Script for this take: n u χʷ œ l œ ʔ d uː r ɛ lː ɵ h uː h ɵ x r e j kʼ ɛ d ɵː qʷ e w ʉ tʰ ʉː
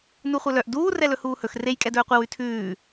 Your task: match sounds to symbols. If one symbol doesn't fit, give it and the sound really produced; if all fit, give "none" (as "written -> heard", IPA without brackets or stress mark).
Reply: lː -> l